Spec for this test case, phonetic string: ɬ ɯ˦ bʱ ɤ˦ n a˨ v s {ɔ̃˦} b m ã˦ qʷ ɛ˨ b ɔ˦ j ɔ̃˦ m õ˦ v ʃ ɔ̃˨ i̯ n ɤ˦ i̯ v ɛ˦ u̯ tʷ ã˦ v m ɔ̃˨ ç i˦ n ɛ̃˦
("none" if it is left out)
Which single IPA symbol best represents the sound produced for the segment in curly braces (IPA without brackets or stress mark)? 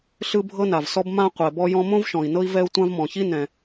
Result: ɔ˦